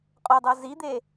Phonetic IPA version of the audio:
qʼodˤo zid̪e

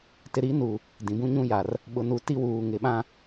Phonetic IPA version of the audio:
tɪ˨ɾi˨˦nu˨ | dĩ˨bũ˦ɲũ˦ja˨r | ɓʊ˨nu˨ ti˦wuː˨ŋɪ˨ɓã˦

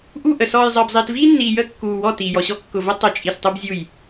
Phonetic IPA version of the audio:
ʔu˦˨ʔə˨ sɔː˨jzˤəː˨bzˤiː˨t viː˦nːiː˨jəː˦˨ kːuː˨wɔ˦˨ tiː˨jɔ˨ɕɔ˦ kːʊ˨və˦ tˤə˨˦t͡ʃʼi˨stˤʊ˦bzʲu˦˨j

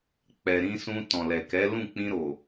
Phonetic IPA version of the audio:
k͡pɛ˨ɾĩ˧sũ˧ tɔ̃˨lɛ˨kɛ˨˦ lũ˦˨k͡pĩ˧ɾo˨

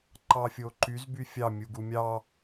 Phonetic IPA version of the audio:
ǃɑfʲoǃyz byfʲɑ mʲuɡumʲɑ

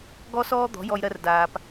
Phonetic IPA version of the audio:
ɡɔ˥sɔː˥ d̪ɔ̤˩˥jɔ˧jɾɜ˧r daː˩p

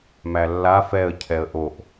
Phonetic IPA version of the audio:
mælːa fɛə̯cʰɛə̯ ʔoʔ

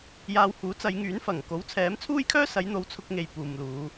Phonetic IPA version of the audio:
jaː˧whuː˨˥t͡sɐ˨˧jŋyː˨˥n fɐ˨˩ŋ ko˨˥wt͡sʰɛː˨˥mt͡sʰuː˥jkʰœː˥ sɐ˨˥jn̪o˨˥w t͡sʰʊ˧k̚ŋe˨j puː˨mluː˨˧

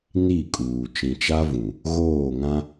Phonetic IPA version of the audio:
ni˦˨kʼuː˨ t͡ʃĩ˨t͡ʃa˦vũ˨ | ɣoː˦˨ŋã˦

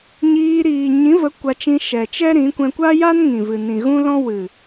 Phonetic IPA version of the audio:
ɲiː˧ɾiː˨ ɲĩ˨˦və˨˦ kʷa˧t͡ʃĩ˧ ʃɛ˨t͡ʃɛ˦ɾĩ˨˦kʷɛ̃˧ kʷa˦ja˦nŋĩ˨ vɨ˨nĩ˨ɣũ˦lɔ̃˦ wɨ˨

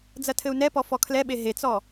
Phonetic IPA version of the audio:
d͡zɐtʰɘu̯nɛpɔ fɔkʰlɛɓe ɦet͡sɔ

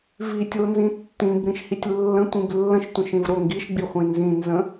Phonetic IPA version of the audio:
vitʲonzĩ tːĩbɾĩʃhitʲ lːə̃tʷĩb lːə̃ʃtʷə̃ʃĩvɾo ŋɡiʃɡ͡biχʷĩ nzĩnzə̃

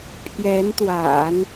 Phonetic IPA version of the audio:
pʰjɛ˧˥nt̪wa̰˨˩˦n

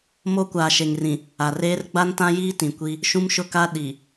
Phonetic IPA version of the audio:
mo˦kʷaː˨ʃe˨ŋrĩ˨ | a˨reː˦r ɡ͡ba˦ntã˦jiː˦ tĩ˨kʷi˦ | ʃũ˦mʃʊ˦ka˦ ɗi˨

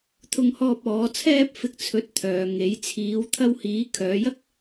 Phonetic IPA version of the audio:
t̪ʰʊ˧ŋhɔː˧p̚ ɔː˨˧ t͡sʰɛː˧p̚fɪ˨k̚ t͡sʰɵ˨˥t̚ t̪ʰœː˨ŋe˨˧j t͡sʰiː˨˧w t̪ʰɐ˧whiː˨˧ kʰœː˨˧jɐ˥k̚

